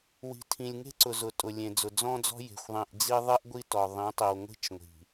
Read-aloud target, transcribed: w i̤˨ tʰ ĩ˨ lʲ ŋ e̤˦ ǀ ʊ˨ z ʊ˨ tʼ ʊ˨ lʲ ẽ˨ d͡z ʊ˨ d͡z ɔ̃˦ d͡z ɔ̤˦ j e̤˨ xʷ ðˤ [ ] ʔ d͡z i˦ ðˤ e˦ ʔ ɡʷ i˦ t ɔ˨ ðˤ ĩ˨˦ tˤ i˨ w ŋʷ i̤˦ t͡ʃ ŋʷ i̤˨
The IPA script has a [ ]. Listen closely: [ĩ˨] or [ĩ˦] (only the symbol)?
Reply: ĩ˨